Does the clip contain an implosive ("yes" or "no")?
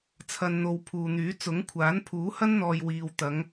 no